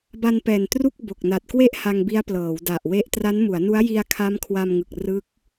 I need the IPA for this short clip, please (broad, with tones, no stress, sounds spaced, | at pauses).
b a˧ n p ɛː˨˩ n t r u˥˩ k̚ b o˨˩ k̚ n a˨˩ t̚ k w e˥˩ ʔ h a˧ ŋ b i˦˥ a̯ p l ɤː˩˦ w d a˨˩ ʔ w e˦˥ ʔ t r a˦˥ n m u˩˦ a̯ n u˦˥ a̯ j i˧ a̯ kʰ a˦˥ m kʰ w a˧ m ŋ ɯ˨˩ k̚ r ɯ˦˥ k̚